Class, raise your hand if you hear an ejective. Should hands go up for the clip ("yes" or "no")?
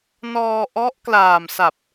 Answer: no